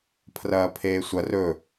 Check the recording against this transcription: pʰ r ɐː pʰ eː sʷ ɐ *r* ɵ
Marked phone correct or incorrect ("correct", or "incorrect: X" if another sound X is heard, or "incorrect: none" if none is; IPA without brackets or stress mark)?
correct